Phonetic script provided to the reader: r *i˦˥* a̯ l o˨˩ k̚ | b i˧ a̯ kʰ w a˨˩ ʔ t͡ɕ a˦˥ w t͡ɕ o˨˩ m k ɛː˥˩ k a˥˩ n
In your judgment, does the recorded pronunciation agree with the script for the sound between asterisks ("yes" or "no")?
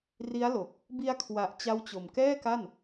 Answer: yes